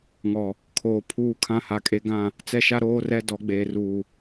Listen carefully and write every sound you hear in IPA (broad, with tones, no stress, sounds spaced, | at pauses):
ŋ ɔ˨ | kʰ oː˨ pʰ uː˦ kʰ ã˦ h a˨˦ kʼ e˦ ɡ ã˦˨ | t͡s ɛ˦ ʃ a˦ ɾ oː˦ r ɛ˦ d ɔ˨˦ ɡ͡b eː˨ r uː˨